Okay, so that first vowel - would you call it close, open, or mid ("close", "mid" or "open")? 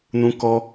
close